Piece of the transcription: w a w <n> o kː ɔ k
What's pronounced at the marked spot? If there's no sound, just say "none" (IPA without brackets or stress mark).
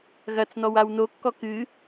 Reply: n